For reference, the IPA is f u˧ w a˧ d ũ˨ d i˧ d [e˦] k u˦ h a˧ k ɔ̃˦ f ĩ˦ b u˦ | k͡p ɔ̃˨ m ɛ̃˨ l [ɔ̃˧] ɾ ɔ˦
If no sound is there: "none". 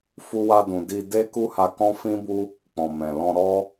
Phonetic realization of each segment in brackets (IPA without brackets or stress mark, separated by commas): e˦, ɔ̃˧